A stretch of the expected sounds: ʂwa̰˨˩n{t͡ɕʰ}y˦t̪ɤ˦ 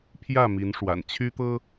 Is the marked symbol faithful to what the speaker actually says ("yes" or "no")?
yes